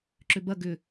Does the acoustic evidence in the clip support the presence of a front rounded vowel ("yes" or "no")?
yes